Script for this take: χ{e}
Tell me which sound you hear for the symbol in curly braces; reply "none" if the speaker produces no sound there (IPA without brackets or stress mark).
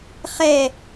ɛ